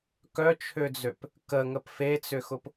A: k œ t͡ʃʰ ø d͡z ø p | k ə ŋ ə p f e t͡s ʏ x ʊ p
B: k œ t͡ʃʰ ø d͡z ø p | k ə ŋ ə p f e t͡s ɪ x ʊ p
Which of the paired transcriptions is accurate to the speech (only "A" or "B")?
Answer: A